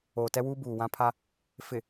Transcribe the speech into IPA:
oː˨ t ɛ˦ w uː˦ b uː˨ w ã˦ pʰ a˦ | f ɪ˨

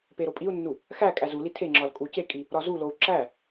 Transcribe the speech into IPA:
p e ɾ o pʼ i u̯ nː u | x æ kʼ æ z u l i tʰ e ŋ͡ǁ ɒ l kʼ u c e kʼ i | ɾ ɒ z u l o u̯ ǁ æ

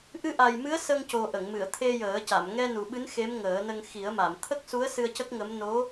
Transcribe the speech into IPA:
ʔ ɨ˧ ʔ a˨˩ j m ɨ˧˥ ə̯ s ə˧ ŋ c o˨˩ ʔ ə˨˩˨ ŋ m ɨ˨˩˨ ə̯ t̪ʰ e˧ j əː˨˩˦ c a˨˩˨ m ŋ ɛ˧ n u˨˩ ɓ ɨ˧˥ n x e˧˥ m ŋ əː˨˩˦ n ə˧ ŋ x i˨˩˦ ə̯ m a˨˩˨ m t̪ʰ ə˦˥ k̚ s u˧˥ ə̯ s ɨ˧ ə̯ c ə˦˥ k̚ ŋ ə˧˥ m n o˧˥

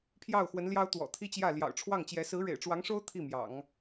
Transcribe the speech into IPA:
pʰ j ɑ˥˩ ʊ̯ x w ə˧˥ n l j ɑ˥ ʊ̯ t̪ w ɔ̰˨˩ t̪ʰ i˥ t͡ɕ j ä˥˩ l j ɑ̰˨˩ ʊ̯ ʈ͡ʂʰ w ɑ˥˩ ŋ t͡ɕ j ɛ˧˥ s ɹ̩˧˥ ɻ ḛ˨˩ ɪ̯ ʈ͡ʂ w ɑ˧˥ ŋ ʂ o˥ ʊ̯ t̪ʰ i˥˩ m j ɑ̰˨˩˦ ŋ

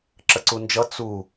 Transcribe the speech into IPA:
ǁ ə ǀ u n d͡ʒ ʌ t͡s u

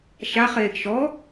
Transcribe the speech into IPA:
ʃ a χ eː ɡ ʃ ɔ

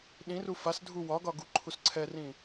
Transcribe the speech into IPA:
ɗ ĩ r u f a s dʱ u w ɒ ɡ ɒ ɡ u ǃʰ u s ǀʰ ɛ r ĩ

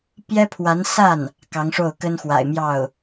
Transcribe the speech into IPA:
p j ɛ˥ pʰ w a˧˥ n s a˥˩ n | k ɑ˧˥ ŋ ʂ o˥˩ ʊ̯ k ə˥ n x w a̰˨˩ ɪ̯ m j ɑ˥˩ ʊ̯

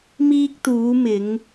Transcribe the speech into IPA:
m iː˧ k̚ t̪ uː˨˧ m ɪ˨˧ ŋ

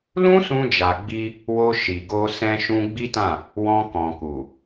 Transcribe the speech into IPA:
l ũ˦ s ũ˧ d͡ʒ a˨ ɡ͡b i˧ | w o˧ ʃ i˨ ɡ o˧ s ɛ̃˧ ʃ ũ˧ ɡ͡b i˦ t ã˦˨ | w ɔ̃˧ k ɔ̃˨ k u˨

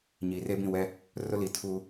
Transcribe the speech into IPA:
ɲ iː˨ r e˦ b ĩ˦˨ w ɛ˦ | r ʊ˦ l i˨ tʰ u˦

